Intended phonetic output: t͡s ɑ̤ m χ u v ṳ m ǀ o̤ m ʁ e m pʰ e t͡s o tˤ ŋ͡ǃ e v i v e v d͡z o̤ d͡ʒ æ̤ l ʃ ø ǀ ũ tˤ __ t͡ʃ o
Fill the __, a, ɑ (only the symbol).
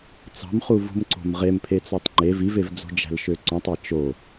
ɑ